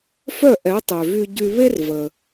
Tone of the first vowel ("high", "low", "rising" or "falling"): falling